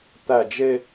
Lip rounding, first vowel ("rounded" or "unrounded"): unrounded